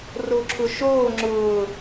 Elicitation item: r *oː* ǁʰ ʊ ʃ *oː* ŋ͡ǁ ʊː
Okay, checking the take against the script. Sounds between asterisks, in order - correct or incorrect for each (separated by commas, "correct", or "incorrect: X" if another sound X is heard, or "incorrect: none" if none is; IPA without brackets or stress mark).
incorrect: o, correct